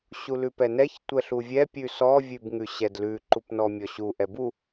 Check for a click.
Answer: present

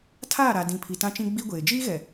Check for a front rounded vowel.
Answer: absent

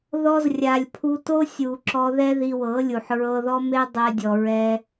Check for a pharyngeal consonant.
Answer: present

